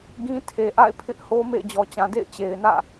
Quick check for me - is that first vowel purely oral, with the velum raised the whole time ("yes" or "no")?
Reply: no